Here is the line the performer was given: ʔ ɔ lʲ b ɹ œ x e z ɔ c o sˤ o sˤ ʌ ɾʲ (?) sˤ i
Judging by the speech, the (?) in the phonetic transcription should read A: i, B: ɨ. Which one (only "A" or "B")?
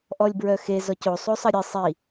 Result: B